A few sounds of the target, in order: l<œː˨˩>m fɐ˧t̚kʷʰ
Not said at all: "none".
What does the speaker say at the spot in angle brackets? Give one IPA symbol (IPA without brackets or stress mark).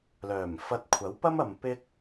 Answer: œː˨˩